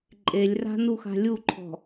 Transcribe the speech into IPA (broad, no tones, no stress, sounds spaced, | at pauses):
ǃʼ e lʲ r a̤ n u x a̤ lʲ u ǃʰ ɔ̤